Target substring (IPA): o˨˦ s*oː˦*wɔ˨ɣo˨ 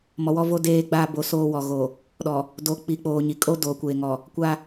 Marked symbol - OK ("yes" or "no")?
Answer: yes